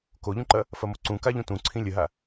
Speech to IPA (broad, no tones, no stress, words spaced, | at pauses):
koʎũǃɐ | fɐmoǀũ kaʎũtũǀʰĩ lʲəɦa